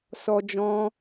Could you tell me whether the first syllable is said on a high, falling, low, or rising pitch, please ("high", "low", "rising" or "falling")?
high